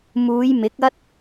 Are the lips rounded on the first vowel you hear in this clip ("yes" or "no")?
yes